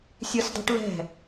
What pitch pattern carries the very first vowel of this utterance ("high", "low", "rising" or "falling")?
high